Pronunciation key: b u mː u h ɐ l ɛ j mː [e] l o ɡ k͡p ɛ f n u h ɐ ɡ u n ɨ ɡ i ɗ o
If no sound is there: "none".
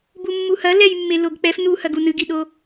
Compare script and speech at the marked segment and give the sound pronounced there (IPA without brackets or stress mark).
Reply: e